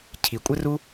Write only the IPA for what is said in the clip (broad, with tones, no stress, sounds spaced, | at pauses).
cʰ i˨ kʷʼ ɘ˦ r u˦